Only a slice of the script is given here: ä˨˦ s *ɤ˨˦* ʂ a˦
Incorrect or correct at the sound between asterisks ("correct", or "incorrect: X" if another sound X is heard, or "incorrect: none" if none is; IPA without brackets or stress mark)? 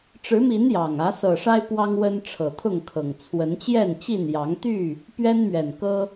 incorrect: ɤ˨˩